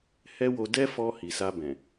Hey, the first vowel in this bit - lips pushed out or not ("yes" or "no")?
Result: no